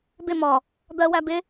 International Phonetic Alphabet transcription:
b ɪ m ɒ | d̪ ɜ w æ b ɪ

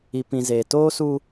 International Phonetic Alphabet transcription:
i˨ p ĩ˨ z eː˨ t oː˦ s u˦

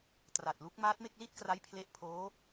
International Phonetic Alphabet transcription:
t r a˨˩ t̚ l u˦˥ k̚ m aː˦˥ t̚ m e˥˩ k̚ l i˥˩ t̚ k r a˦˥ j pʰ l e˦˥ ʔ pʰ oː˦˥

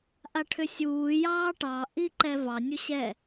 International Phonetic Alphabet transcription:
ʔ a ʈʰ ʏ sʲ uː j ɑː ʈ ɑ ʔ i ǃ ɛ v ɑ nʲ u ɕ ɛ

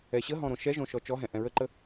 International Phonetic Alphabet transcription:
ɛ ɕ ə ɦ ɔ̃ ɾ õ ʃ ɛ ʒ õ ʃ ɔ t͡ʃ ɔ ɦ ɛ̃ ʔ ɛ̃ ɹ ə ǃ ə

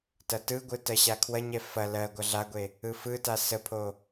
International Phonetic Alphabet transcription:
t ɐ t ɯ ɡʷ ɯ t ɜ ɕ a kʰ w ɐ ɲ ɛ f ɐ l ɜ ɡʷ ɐ ɮ a ɡʷ e | ɯ f ɯ t a s ə pʰ o

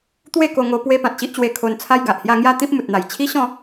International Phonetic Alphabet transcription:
t̪ w e˥˧ k o˧ ŋ o˧ p w e˧ p ã˨ t̚ ɕ i˦ ʔ t͡ɕ w e˧ kʰ o˧ n t͡sʰ a˦ j ɡ a˨ ʔ h j a˥˧ ŋ j a˥˧ t̪ ĩ˦ p̚ m u˨ t̚ n̪ a˨˩ j t͡ɕʰ i˦ ɕ ɔ̃˥˧

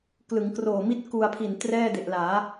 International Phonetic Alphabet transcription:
k l ɯ˩˦ ŋ k r oː˨˩ m i˥˩ t̚ k u˧ a̯ pʰ i˨˩ n t r ɛː˥˩ d e˨˩ ʔ l aː˩˦

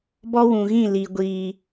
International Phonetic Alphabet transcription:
b ɔ˦ w ũ˨ ɣ ĩ˦˨ l i˨ ɡʷ iː˨

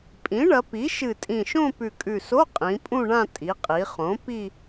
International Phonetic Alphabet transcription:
pʼ ĩ˩˥ ɳ ɐ˩˧ p i˩˥ ʃ ɨ˨˩ tʼ ĩ˨˩ ʃ õ˥˧ p ʉ˨˩ kʼ ʉ˨˩ s o˧˥˧ qʼ ĩ˩˧ pʼ ũ˥˧ ɳ ã˥˧ tʼ i˩˧ qʼ i˩˧ χ õ˩˥ p i˥˧

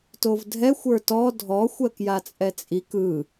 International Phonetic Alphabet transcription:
t o v dʱ ɛ xʷ ə˞ t ɔ dʱ ɔ xʷ ɜ k j a t͡sʼ ɛ t͡sʼ i k ɯ

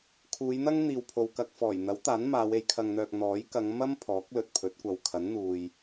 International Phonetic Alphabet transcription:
kʰ uː˨˧ j n̪ ɐ˥ ŋ n̪ iː˨ w pʰ o˨ w k ɐ˧ k̚ f ɔː˨˩ j n̪ ɐ˨˥ w t̪ aː˨˥ n m aː˨˧ w e˧ j kʰ ɐ˧ ŋ n̪ œː˧ k̚ n̪ ɔː˨˥ j k ɐ˨˧ ŋ m ɐ˥ m pʰ ɔː˨˥ k̚ l ɵ˨ t̚ pʰ ɵ˨˥ t̚ kʷ ɐ˨ w kʰ ɐ˨˥ n n̪ uː˨ j

